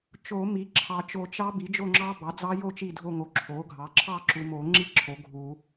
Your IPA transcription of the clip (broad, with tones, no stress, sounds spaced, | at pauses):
t͡ʃ o˨˩˦ m i˩˥ ǁʰ ɑ˨ t͡ʃ o˨˩˦ t͡ʃ ɑ˦˥ b i˩˥ d͡ʒ o˥˨ ŋ͡ǁ ɑ˦˥ b ɑ˩˥ d͡z ɑ˦˥ j o˥˨ t͡ʃ i˥˨ dʱ o˥˨ ŋ o˨ ǁʰ o˩˥ ɡʱ ɑ˩˥ ǁʰ ɑ˥˨ ǁ u˨ m o˨˩˦ ŋ͡ǁ i˦˥ ǁʰ o˩˥ ɡʱ u˨˩˦